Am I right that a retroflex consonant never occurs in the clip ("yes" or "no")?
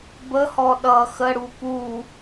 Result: no